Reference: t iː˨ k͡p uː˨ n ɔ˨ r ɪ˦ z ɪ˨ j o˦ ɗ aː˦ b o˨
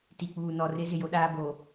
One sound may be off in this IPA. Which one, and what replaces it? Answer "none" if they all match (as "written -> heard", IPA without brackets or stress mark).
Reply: iː˨ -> i˨